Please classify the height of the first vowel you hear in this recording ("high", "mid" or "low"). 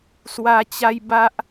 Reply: low